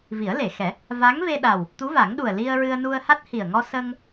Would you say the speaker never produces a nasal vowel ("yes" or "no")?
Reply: yes